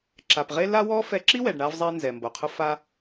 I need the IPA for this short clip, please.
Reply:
ǁ a˩ p ʁ e˥ l a˥ w ɔ˥ f ɛ˧ ǁ i˥ w ɛ˩ ɖ ɳ a˧ v zˤ e˧ n z ɛ˩ m b o˩ qʰ ʊ˧ f a˧

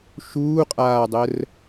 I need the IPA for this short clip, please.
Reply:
ʃ uː qʼ aː dˤ ə r

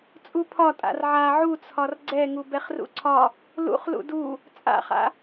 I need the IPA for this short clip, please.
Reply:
t͡sʼ u pʰ ɒ tʼ a̰ r ʕ a ʕ u t͡sʰ ɒ r ɡ͡ǀ ɛ ŋ u b ɛ χ r ṵ ǀʰ ɒ | l ṵ χ l ṵ d u | t͡sʼ a̰ χ a̰

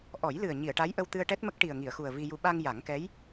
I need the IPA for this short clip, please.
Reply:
ʔ ɔ˨˩˦ j l ɨ˨˩ ə̯ ɲ i˨˩˨ ə̯ ʈ a˧˥ j ʔ ə˧ w t̪ ɨ˧ ə̯ ʈ ɛ˦˥ t̚ m ə˦˥ k̚ ʈ i˨˩ ə̯ ŋ i˨˩˨ ə̯ x u˨˩ ə̯ v i˧ j u˧ ɓ a˧ ŋ j a˨˩˦ ŋ k ɛ˧˥ j

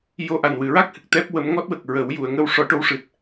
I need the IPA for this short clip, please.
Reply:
j o˧ ʔ a˨˩ n w ɨ˨˩˨ ɹ a˦˥ k̚ h ɨ˨˩ k̚ t̪ ɛ˦˥ p̚ w ə˧˥ m ŋ ɔ˦˥ t̚ w ə˨˩ k̚ ɹ ə˨˩˦ w j u˨˩˨ ə̯ ŋ əː˧ w ʂ ɔ˨˩˦ ʈ o˧˥ w ʂ ɨ˨˩ t̚

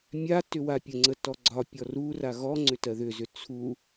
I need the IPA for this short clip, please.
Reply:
mʲ a t ʏ w a pʲ ə ŋ͡ǀ ə t ɔ ɡ͡ǀ ɒ pʲ ɔ r u r a ɣ ɔ ŋ͡ǀ ʏ t ɜ ð ʏ z ʏ t͡sʰ u

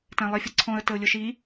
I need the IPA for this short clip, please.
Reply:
t æ̃ lˠ i fʲ ʌ ǀʰ ɔ̃ ə̯ t ə ʊ̯ lʲ ʊ ʃ i

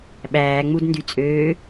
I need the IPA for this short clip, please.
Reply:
ɓ æː ŋ͡m u d n d y t͡sʼ øː

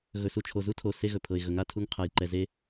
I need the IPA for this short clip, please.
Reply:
ɣ ɵ˨ s u˨ t͡ʃʰ o˨ z u˦ tʰ o˨ s e˦ ɣ ɵ˨ pʰ ɤ˨ ɪ̯ ɣ ɵ˨ ŋ a˦˨ tʰ u˦ ŋ qʰ a˨ j ǃ ɛ˨ z e˦

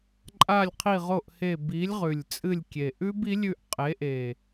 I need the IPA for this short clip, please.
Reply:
ǃʼ a˦˨ lʲ qʰ i˦˨ ʁ o˦˨ ʔ h e˦˨ b i˨˥ lʲ ʁ ʉ˨˩ lʲ t͡sʼ ɨ˦˨ lʲ kʲ e˨˩ ʔ ʉ˦˥ b i˨˥ lʲ ʉ˦˨ ʔ qʼ e˨˥ ʔ e˨˩

